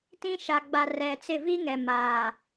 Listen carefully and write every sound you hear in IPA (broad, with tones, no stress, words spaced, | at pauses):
tĩ˦ʃa˨ ɡ͡ba˨ rɛ˨t͡sɪ˦˨ vi˦ŋɛ˨ ma˨